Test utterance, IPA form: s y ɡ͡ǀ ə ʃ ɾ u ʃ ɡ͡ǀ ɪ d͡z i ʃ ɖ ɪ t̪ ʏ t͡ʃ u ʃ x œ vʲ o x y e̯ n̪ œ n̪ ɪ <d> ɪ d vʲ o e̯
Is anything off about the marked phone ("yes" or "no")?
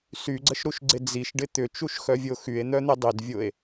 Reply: yes